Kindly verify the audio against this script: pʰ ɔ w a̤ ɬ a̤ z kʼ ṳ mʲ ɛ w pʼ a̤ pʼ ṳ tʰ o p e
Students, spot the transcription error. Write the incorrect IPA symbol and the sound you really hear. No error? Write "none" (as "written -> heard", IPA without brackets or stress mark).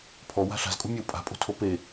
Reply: none